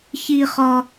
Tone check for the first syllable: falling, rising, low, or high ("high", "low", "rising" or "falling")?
high